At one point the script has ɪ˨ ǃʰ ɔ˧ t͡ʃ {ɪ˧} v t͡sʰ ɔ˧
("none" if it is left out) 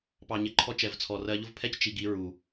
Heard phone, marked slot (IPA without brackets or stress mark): ɛ˧